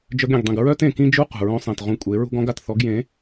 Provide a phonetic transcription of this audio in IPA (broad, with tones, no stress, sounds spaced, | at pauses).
d͡ʒ œ˧ ɡ ɾʲ ẽ˨ ɡ dˤ ĩ˨ ɡ ɹ œ˦ t ẽ˨ k ĩ˦ d͡ʒ u˦ q ṳ˨ ɹ õ˧ sˤ ẽ˨ t ʁ ũ˧ kʷʼ e˨˦ ɹ ṳ˦ ɡ ɔ̃˦ ɡ a˨ t θ ɔ˨˦ ɡ j ẽ˨˦